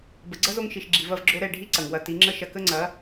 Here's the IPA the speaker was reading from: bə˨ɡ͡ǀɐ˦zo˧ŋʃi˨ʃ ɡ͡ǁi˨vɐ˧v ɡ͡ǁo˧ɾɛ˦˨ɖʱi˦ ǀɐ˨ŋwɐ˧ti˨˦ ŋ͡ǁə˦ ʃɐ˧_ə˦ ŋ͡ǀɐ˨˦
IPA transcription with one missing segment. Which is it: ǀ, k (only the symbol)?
k